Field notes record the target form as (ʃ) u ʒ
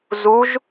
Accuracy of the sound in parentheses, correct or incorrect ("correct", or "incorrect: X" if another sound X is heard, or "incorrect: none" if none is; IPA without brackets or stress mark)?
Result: incorrect: z